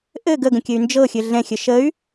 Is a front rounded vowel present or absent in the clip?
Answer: present